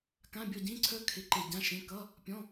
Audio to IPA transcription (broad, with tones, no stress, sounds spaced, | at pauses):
k ã˧˥˧ bʲ ɔ˦˨ ɟ ĩ˧˥˧ ǀʰ œ˥ kʰ ɪ˧˥˧ ǃ e˦˨ ɟ ã˧˥˧ ʃ ẽ˧˥˧ k ʌ˧˥˧ | pʲ ɔ̃˧˥˧